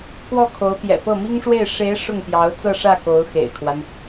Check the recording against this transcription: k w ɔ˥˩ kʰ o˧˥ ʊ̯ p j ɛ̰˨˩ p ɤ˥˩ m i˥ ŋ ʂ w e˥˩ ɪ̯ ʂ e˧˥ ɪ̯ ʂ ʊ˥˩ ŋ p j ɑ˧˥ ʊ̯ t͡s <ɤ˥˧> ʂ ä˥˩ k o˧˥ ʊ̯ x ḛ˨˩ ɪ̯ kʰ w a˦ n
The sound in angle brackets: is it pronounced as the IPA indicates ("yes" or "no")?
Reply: yes